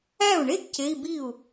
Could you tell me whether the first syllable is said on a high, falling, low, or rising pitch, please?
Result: falling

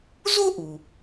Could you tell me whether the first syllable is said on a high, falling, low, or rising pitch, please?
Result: high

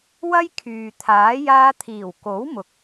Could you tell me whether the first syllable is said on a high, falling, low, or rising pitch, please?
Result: high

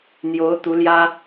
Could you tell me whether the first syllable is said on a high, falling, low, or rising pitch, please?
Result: rising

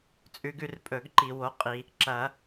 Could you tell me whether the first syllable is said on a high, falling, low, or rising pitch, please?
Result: rising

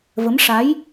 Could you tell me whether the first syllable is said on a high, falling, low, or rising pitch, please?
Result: rising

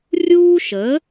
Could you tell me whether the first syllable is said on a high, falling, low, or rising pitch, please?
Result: high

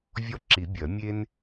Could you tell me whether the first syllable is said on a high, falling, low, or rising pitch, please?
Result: high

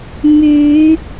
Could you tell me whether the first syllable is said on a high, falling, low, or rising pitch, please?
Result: rising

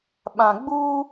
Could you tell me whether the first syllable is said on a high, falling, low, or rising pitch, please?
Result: low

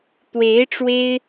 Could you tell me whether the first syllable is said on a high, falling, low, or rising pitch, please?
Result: rising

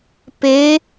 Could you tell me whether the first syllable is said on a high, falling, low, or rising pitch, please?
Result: rising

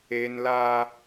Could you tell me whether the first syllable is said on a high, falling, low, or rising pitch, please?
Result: high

